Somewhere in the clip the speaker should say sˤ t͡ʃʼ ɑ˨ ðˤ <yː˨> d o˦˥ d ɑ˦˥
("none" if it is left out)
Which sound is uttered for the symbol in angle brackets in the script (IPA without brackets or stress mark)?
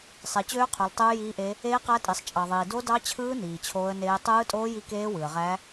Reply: iː˨